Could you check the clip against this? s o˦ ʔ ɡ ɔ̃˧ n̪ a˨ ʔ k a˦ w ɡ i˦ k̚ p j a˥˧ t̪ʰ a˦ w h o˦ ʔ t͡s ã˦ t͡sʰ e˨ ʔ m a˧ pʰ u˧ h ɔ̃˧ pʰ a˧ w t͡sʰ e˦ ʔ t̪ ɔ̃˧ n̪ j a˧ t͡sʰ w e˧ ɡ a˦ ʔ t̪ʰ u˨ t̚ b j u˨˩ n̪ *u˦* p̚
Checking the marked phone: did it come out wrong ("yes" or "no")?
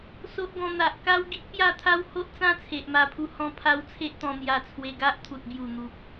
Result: yes